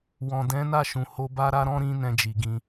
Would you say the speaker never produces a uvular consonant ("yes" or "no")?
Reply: yes